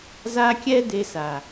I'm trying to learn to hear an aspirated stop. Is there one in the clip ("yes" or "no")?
no